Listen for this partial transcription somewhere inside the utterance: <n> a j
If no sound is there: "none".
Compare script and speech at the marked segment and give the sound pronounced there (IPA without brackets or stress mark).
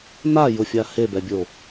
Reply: n